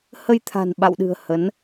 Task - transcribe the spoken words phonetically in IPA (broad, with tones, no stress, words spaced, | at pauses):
hə˧jt̪ʰa̤˨˩nɓa̰˧˨wɗɨ̤˨˩ə̯ hə˨˦n